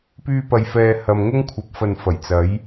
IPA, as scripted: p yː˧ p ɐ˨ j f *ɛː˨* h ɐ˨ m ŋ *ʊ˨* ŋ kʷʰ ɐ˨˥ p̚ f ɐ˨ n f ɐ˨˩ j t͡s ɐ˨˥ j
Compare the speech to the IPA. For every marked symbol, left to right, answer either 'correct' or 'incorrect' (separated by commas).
correct, incorrect